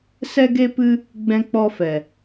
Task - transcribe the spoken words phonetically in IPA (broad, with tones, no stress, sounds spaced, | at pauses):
s ɛ˦ ɡ e˦ p ɨ˦ | ɡ͡b ɛ̃˧ k͡p ɔ˧ f ɛ˨